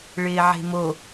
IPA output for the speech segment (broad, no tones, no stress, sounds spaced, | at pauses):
ɭ ɪː ʕ e̤ m o